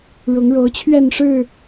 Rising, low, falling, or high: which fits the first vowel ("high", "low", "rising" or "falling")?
rising